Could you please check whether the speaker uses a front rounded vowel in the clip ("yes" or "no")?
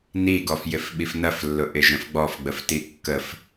no